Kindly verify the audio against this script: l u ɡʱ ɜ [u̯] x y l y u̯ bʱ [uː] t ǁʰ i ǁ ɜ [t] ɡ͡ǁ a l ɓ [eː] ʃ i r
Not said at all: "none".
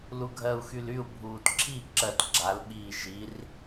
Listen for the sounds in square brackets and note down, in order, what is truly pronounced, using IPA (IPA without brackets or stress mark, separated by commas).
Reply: u̯, uː, t, iː